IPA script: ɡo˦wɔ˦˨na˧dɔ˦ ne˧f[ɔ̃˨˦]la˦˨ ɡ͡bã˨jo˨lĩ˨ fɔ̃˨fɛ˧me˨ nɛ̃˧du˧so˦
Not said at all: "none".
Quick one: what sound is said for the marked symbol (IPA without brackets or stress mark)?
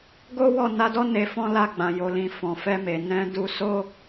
ɔ̃˦